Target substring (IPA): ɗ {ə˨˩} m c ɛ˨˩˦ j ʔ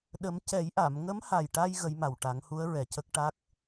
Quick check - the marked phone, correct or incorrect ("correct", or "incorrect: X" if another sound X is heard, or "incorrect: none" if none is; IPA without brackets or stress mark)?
incorrect: ə˨˩˦